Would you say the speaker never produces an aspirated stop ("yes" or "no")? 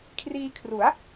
no